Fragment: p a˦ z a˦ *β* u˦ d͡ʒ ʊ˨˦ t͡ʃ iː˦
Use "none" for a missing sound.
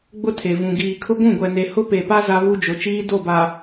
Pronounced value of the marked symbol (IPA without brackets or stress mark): β